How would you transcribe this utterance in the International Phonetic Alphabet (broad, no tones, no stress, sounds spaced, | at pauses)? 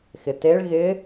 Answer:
x ɪ t e ɭ ɣ ɪ